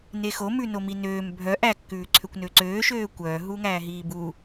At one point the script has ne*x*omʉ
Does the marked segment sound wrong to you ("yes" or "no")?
no